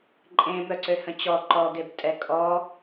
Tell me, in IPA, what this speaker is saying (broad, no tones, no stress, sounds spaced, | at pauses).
ǃʼ ẽ m œ ǀ ø h ə̃ t͡ɕ ɔ ǃ ɔ ɡ e b tʼ ɛ kʼ ɔ